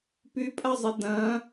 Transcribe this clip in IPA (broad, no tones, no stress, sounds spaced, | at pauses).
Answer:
p y pʼ ɐ zˤ ɪ d ɐ̃